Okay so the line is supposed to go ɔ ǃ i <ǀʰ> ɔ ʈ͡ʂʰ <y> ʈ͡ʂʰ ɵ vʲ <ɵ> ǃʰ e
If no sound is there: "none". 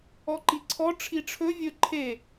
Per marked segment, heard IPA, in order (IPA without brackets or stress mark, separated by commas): ǀʰ, i, ɵ